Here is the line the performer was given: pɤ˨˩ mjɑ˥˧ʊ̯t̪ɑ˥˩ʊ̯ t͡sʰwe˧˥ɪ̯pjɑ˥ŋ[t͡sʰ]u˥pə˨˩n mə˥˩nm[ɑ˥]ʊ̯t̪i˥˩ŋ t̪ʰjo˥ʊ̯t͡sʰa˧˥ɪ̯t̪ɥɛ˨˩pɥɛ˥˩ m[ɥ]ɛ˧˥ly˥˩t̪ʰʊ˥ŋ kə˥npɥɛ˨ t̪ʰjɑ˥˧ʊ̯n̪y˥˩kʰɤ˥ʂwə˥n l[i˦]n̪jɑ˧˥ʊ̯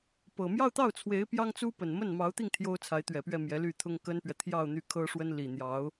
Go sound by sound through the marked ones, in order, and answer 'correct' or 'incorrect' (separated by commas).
incorrect, incorrect, incorrect, incorrect